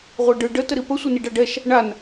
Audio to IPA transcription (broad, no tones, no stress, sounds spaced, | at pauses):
ʁʷ ɛ ɖ ɯ ɖ ə t ə ɾ i p ə sʷ ə n i ɖ a ɖ ɛ ʃ | ɳ a n